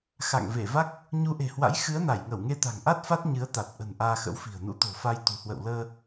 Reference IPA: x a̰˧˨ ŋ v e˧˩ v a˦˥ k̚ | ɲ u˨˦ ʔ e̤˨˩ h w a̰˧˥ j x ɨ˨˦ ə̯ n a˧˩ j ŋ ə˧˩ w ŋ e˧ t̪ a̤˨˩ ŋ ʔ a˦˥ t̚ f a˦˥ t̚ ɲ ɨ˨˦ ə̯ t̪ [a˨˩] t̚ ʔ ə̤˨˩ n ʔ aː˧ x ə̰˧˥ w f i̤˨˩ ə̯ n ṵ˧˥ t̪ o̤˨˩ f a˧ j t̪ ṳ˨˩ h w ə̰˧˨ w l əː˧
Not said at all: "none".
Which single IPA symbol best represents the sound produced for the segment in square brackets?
a˨˩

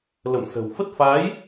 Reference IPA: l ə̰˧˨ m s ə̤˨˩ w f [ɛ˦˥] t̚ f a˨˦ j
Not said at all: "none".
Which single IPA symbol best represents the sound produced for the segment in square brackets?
ə˦˥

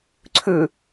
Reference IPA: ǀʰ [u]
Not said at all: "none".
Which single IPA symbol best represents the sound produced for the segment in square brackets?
ʉ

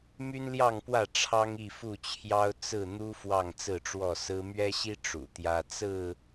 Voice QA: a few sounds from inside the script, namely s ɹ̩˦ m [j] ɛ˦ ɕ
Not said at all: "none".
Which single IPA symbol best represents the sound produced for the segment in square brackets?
ɥ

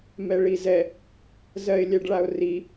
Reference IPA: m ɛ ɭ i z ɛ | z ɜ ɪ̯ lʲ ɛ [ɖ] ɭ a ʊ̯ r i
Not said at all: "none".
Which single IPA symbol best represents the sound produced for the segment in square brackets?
ɖ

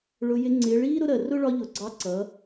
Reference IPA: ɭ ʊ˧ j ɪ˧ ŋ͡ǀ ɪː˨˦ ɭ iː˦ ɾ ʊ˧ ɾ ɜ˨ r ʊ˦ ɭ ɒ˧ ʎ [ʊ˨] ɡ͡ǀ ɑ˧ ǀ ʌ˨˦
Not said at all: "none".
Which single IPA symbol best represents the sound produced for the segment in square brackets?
ʊ˨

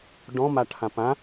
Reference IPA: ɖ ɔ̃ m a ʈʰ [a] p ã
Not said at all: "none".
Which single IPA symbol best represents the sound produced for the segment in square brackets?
ã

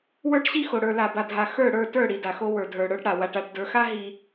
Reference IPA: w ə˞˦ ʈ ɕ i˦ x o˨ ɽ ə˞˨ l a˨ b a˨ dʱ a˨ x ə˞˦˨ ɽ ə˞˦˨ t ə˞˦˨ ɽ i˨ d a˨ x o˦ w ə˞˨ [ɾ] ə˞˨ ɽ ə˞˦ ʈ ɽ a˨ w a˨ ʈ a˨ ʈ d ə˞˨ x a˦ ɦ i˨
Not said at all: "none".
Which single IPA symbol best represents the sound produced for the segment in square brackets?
dʱ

